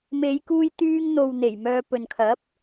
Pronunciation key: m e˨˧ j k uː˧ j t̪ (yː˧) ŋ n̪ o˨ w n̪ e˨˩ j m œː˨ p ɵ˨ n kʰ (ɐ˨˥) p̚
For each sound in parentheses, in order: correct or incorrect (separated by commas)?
correct, correct